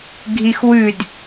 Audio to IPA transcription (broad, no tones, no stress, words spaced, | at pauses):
ɡʱixwʉd